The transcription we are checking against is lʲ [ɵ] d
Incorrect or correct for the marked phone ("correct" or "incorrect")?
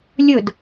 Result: correct